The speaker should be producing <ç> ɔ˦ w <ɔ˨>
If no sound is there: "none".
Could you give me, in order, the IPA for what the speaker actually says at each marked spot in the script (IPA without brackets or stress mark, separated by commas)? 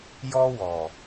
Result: j, ɔ˨